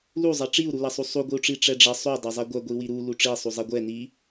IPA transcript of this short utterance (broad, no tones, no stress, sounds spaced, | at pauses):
l u zˤ ɐ ʈ͡ʂ i u̯ ɾ u l ɐ sˤ u sˤ u ɡʷ i u̯ ʈ͡ʂ i ʈ͡ʂ ɛ ɖ͡ʐ ɐ sˤ u dˤ ɛ zˤ ɛ ɡʷ ɐ ɡʷ i w i ɾ u l u ʈ͡ʂ i sˤ u zˤ ɛ ɡʷ ɛ n i